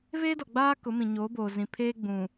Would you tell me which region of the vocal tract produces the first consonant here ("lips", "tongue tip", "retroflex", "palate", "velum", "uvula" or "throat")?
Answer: lips